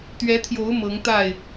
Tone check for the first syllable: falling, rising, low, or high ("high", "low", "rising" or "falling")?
rising